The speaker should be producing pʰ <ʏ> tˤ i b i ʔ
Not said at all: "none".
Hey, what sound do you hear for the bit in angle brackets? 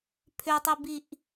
ʏ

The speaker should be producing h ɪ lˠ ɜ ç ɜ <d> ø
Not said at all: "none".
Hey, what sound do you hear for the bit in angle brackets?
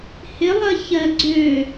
ɡ͡ǀ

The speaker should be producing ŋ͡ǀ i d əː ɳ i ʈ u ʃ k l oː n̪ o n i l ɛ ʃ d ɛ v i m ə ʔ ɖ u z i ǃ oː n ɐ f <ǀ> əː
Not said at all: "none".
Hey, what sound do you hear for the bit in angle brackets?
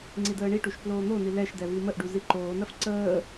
ǀ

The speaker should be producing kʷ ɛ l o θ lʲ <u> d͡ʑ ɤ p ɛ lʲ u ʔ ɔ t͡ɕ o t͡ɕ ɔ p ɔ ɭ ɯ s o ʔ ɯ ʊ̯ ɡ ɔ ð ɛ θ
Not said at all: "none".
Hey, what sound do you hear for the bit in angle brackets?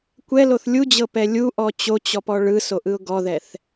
u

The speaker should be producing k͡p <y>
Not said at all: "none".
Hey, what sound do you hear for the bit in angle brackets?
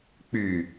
y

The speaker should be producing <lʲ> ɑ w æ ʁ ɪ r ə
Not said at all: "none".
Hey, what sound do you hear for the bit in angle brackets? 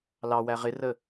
l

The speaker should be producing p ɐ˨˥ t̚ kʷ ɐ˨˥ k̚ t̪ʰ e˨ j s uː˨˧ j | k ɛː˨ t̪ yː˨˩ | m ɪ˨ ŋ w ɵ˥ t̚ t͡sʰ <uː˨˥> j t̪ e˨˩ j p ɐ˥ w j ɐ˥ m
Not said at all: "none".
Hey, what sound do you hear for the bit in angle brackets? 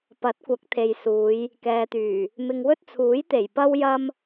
uː˨˥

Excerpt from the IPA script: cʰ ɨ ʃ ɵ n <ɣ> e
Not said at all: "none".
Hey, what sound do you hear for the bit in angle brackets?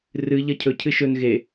ɣ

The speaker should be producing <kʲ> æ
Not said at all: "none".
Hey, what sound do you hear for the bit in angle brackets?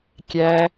kʲ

